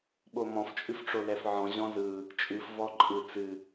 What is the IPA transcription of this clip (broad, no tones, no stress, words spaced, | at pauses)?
ɓomɔ̃f t͡ʃʼɨfʈ͡ʂolɛfʕɔ̃ ʑɔ̃zɯ | t͡ʃʼɨf vɔǃʼɯ t͡sɨ